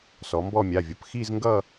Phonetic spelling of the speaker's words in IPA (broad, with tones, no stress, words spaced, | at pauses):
sɔ˩˧mbɔ˦˨ mʲa˩˧˩vʲʌ˩˧p xi˦˨zŋɡʌ˦˨